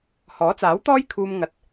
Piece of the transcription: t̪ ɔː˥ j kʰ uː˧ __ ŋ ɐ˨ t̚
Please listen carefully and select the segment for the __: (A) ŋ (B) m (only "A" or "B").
B